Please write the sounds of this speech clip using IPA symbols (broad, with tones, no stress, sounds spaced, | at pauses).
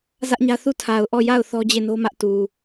z ä˦ ʔ ɲ ä˦ θ u˦˨ tʰ a˨ ʊ̯ ʔ ɔ˦˨ j a˦˨ ʊ̯ θ ɔ˦ d͡ʑ e˦˨ n o˦ m ä˦ ʔ t u˨